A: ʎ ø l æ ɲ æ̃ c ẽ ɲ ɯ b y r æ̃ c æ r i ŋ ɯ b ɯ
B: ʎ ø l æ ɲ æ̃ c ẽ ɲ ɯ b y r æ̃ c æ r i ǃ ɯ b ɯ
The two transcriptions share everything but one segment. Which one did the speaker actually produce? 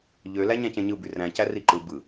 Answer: B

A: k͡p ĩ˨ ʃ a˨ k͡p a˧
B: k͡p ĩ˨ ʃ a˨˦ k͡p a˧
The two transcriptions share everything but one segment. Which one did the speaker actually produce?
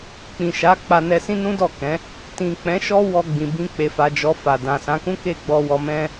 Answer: B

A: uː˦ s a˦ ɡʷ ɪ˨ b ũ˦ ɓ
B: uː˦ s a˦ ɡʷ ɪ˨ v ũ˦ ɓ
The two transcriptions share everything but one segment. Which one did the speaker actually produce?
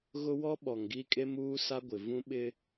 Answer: B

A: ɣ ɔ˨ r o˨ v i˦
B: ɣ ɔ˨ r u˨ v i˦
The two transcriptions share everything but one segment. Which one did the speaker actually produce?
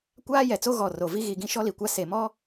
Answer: A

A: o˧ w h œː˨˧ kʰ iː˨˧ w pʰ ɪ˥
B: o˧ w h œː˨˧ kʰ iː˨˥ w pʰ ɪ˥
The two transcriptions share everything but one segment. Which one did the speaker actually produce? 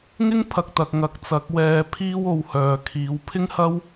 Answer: A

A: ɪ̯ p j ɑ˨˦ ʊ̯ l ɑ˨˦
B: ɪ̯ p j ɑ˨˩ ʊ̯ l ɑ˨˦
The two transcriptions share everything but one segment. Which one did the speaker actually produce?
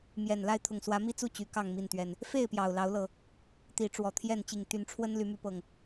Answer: B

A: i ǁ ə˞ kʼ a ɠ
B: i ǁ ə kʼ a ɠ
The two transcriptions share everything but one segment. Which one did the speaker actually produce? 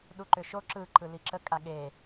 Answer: B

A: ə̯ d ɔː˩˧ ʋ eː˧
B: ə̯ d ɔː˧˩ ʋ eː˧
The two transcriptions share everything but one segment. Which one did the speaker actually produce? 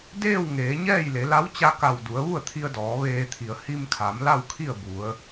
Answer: A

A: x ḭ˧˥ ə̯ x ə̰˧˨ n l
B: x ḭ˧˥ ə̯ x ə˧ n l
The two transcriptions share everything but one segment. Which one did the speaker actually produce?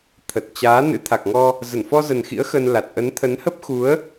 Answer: B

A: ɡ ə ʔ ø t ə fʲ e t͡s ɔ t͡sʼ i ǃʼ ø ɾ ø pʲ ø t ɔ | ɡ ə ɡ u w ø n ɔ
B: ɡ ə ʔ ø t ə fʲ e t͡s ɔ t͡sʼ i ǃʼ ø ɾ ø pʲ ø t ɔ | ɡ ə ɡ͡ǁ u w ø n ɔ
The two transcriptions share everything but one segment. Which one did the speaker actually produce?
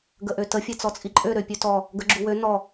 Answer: B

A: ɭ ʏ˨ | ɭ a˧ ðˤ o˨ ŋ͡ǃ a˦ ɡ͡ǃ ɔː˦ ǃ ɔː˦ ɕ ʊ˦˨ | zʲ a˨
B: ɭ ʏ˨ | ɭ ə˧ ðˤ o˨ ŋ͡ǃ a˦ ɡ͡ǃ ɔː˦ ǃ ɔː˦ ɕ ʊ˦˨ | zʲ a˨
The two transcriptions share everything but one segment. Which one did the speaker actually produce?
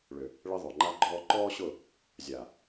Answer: B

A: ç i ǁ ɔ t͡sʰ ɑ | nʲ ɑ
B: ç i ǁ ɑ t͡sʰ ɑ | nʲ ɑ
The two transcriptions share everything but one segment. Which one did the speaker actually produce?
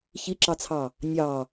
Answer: B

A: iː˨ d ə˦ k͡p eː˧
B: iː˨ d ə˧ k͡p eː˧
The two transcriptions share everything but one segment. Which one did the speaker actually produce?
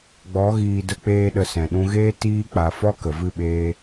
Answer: B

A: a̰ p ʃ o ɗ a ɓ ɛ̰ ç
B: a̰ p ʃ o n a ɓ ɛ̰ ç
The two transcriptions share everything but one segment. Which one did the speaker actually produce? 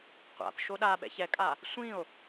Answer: A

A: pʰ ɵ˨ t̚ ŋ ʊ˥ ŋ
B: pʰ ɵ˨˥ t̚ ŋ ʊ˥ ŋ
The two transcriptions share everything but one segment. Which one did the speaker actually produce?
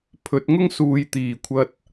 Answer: B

